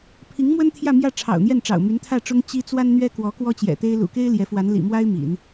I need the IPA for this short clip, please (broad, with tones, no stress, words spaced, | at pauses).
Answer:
pʰi˧˥ŋmwə˥n t̪ʰjä˥˧mjä˥˩ ʈ͡ʂʰɑ̰˨˩ʊ̯n̪jɛ˥˩nʈ͡ʂɑ̰˨˩ʊ̯ my˧˥nt̪ʰä˥˩ʈ͡ʂʊ˥ŋ t͡ɕi˥ t͡swa˥nn̪ɥɛ˥ kwɔ˧˥ kwɔ˥t͡ɕjɛ̰˨˩t̪e˥ɪ̯ lṵ˨˩ke˥ɪ̯ ljɛ˧˥fwa˧˥n lḭ˨˩mwa˥ɪ̯ mḭ˨˩˦n